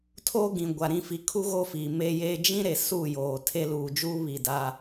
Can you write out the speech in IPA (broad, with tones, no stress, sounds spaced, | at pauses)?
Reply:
tʰ oː˦ ɡ ĩ˨ ɡʷ a˨ ɾ ĩ˦˨ f i˨ kʰ u˦ ɣ o˦ f iː˨ m e˦ j e˦ d͡ʒ ĩ˦ ɾ e˨ s u˦˨ j oː˨ tʰ e˦ l uː˨ d͡ʒ uː˦ β i˦˨ d a˦